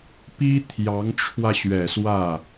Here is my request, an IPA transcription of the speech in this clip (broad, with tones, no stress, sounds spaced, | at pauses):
p i˥ t̪ʰ j ɑ˧˥ ŋ ʈ͡ʂʰ w ä˧ ɕ ɥ ɛ˨˩ s w ä˥˩